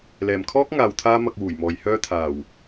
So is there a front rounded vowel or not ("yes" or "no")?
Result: yes